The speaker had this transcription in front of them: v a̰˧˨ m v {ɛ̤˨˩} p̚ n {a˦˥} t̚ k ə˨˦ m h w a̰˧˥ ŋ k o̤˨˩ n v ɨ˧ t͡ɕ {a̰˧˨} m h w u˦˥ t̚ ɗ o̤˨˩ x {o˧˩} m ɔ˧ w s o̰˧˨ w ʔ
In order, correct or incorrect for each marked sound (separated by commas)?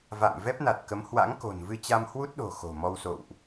incorrect, incorrect, incorrect, incorrect